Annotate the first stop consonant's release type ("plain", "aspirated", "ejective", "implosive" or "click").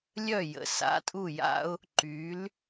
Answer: ejective